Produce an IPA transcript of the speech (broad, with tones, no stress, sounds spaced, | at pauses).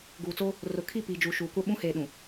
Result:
ɡ uː˨ t͡s o˦ | r ʊ˨ kʰ i˦˨ p iː˨ d͡ʒ uː˨ ʃ uː˨ kʷ a˦ ɓ ũ˦ h eː˨ ɗ ũ˨